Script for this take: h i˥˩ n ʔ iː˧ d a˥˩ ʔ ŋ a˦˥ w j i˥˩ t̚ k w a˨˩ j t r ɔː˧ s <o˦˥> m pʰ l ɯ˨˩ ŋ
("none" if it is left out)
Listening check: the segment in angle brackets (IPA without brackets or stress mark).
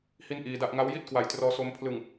o˧